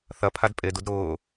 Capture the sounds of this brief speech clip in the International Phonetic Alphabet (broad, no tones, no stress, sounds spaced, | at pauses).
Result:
θ ɐ pʰ a d pʼ e d u d ɾ ʊː